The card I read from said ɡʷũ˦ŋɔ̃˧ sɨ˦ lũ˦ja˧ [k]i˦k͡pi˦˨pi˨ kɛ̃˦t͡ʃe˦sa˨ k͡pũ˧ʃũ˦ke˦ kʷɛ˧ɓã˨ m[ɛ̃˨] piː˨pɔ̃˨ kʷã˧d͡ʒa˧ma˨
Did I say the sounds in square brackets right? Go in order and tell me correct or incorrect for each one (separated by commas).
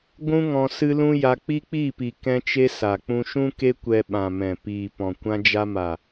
incorrect, correct